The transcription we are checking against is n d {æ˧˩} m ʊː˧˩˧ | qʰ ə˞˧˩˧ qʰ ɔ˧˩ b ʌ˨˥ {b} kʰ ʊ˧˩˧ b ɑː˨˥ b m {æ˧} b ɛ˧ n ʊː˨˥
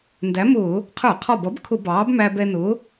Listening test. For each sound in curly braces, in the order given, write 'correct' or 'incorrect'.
incorrect, correct, correct

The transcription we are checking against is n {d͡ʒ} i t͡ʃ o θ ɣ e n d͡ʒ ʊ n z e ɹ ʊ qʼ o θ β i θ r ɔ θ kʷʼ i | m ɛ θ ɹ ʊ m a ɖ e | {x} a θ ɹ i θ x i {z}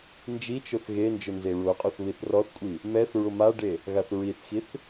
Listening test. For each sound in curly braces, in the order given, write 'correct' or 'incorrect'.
correct, incorrect, incorrect

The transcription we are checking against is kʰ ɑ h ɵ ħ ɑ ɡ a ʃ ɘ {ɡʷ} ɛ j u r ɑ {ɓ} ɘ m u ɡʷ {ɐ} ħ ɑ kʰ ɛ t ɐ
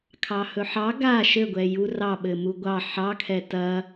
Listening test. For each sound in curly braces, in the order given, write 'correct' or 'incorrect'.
correct, correct, incorrect

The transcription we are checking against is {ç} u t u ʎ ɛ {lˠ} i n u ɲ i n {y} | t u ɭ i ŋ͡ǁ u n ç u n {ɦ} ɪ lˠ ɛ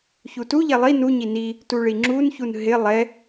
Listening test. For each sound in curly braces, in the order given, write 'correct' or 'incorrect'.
correct, correct, incorrect, correct

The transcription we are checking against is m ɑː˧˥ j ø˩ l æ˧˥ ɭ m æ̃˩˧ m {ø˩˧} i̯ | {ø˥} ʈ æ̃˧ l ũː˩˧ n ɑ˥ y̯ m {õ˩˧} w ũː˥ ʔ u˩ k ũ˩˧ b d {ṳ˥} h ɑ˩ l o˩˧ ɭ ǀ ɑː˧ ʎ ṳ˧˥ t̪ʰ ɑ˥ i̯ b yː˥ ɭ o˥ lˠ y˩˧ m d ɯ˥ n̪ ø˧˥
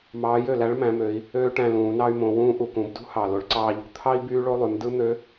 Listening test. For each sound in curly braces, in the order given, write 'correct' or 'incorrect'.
correct, incorrect, correct, correct

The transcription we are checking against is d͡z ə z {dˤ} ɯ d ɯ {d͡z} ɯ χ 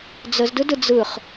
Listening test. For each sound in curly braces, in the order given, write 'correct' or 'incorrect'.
incorrect, correct

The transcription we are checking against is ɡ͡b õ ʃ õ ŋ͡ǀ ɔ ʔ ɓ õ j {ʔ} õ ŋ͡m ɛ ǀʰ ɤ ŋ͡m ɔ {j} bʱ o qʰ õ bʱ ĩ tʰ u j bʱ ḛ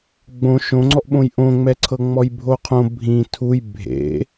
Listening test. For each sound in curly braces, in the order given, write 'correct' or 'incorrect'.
correct, correct

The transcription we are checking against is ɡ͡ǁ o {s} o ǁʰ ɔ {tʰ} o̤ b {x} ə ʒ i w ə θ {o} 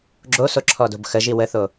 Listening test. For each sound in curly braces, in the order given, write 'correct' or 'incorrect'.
correct, incorrect, correct, correct

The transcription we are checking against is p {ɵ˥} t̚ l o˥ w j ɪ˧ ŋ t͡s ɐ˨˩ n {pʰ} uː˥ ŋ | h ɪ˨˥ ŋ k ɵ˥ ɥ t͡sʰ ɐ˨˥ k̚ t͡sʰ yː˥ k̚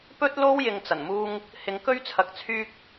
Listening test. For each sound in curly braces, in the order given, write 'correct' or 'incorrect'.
correct, incorrect

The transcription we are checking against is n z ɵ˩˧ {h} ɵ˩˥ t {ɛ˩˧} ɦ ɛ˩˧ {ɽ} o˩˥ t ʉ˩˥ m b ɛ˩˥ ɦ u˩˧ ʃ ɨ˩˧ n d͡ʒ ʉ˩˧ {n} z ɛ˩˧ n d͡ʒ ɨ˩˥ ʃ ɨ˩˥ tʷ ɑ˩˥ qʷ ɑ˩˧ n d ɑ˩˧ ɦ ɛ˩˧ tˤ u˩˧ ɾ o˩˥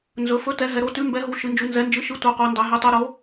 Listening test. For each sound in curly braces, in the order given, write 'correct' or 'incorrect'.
incorrect, correct, incorrect, correct

